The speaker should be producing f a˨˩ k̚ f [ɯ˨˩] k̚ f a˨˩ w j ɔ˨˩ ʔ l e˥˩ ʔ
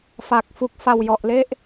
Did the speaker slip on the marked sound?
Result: yes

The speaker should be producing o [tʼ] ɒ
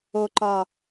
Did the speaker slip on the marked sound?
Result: yes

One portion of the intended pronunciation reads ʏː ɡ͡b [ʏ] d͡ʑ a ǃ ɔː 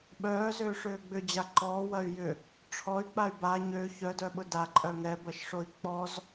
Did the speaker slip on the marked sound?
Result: no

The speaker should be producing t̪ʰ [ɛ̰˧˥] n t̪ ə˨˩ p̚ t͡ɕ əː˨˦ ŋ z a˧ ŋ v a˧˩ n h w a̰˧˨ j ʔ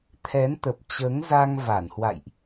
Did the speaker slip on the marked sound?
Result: yes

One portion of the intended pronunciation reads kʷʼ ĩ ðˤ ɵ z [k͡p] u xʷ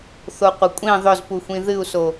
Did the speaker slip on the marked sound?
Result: yes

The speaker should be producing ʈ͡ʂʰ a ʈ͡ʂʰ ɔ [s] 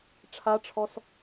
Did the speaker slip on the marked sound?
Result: no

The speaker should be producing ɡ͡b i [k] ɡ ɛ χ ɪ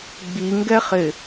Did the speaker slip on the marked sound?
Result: yes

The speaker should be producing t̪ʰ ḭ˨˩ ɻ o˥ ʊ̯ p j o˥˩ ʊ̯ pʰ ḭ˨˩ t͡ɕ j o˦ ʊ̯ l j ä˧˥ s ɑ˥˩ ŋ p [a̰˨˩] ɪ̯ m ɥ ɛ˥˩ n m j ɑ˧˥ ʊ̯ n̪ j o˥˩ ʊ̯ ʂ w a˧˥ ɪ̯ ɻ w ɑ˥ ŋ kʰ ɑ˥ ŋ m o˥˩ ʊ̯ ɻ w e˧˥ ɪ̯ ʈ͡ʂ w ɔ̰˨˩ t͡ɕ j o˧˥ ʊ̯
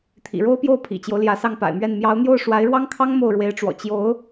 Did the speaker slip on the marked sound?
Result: no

